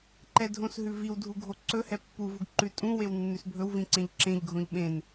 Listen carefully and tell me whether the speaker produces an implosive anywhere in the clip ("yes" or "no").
yes